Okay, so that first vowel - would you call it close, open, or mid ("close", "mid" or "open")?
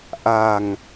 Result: open